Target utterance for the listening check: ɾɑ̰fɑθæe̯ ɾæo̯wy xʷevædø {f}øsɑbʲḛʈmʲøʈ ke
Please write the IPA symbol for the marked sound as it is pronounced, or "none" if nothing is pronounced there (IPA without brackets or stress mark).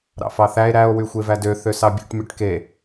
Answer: θ